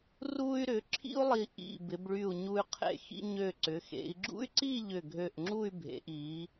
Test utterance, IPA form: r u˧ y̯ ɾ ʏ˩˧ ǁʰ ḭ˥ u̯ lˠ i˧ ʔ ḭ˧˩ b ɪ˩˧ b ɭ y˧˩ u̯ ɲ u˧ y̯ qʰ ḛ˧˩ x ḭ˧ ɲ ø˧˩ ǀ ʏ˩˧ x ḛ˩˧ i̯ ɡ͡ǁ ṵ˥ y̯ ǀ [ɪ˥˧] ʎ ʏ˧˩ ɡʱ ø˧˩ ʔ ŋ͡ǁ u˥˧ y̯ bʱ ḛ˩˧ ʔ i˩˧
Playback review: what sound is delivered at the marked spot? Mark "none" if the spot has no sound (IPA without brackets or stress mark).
i˥˧